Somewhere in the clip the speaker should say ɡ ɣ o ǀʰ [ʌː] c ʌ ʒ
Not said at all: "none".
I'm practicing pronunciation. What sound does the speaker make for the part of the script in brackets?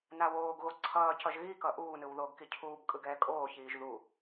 ʌː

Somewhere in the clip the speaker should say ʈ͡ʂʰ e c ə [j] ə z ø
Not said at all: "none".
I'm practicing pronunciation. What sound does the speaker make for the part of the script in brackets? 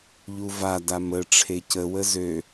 w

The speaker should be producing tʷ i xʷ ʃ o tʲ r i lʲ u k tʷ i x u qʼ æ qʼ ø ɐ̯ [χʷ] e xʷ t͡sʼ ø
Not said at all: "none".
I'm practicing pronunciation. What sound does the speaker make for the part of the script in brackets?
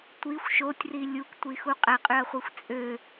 χʷ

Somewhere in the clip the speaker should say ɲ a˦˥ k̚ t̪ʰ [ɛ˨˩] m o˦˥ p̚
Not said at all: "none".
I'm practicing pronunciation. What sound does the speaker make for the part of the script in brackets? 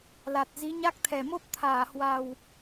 ɛ˨˩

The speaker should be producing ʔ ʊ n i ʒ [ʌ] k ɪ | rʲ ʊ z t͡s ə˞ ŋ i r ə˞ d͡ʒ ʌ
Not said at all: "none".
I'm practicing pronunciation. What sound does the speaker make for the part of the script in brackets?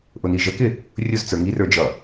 ə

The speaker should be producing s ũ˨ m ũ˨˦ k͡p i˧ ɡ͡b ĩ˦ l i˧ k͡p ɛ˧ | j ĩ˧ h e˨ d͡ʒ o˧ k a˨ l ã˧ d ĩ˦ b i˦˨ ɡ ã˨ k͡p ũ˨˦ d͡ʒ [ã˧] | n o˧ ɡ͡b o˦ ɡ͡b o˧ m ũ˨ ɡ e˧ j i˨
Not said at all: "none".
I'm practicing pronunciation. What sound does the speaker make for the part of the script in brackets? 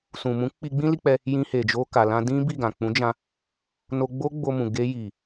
ã˧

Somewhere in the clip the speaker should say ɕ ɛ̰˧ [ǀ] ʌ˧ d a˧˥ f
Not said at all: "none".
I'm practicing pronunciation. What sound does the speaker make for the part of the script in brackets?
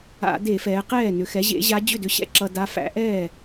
ǁ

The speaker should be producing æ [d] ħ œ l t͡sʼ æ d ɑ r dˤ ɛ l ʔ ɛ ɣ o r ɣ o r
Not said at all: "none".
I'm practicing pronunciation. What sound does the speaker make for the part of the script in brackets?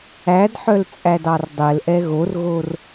d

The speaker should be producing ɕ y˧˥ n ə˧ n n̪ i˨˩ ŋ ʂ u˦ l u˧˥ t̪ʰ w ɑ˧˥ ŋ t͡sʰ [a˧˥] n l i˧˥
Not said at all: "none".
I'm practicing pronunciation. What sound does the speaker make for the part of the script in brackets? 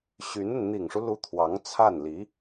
a˥˩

